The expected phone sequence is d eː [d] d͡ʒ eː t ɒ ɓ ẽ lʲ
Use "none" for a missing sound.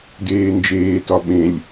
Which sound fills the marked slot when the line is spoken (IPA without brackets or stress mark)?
n